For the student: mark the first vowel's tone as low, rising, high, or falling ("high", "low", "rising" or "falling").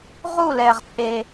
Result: falling